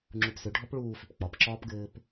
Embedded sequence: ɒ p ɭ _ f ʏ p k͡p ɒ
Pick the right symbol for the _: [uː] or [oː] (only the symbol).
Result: uː